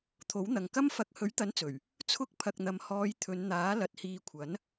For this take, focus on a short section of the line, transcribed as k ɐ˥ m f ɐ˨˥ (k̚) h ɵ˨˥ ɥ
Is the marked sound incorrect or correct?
correct